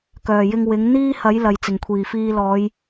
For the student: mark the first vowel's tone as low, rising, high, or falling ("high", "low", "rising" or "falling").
low